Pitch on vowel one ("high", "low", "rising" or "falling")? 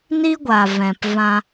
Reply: high